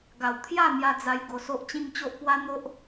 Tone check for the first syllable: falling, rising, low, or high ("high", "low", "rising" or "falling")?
low